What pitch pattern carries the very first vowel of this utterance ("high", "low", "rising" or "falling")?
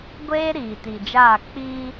high